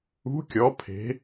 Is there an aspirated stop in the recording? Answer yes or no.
yes